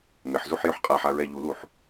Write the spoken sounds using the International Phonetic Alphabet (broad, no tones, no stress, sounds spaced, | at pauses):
m ɪ ħ z u ħ j ø ħ qʼ a ħ a ɹ ɛ ʎ u l u ħ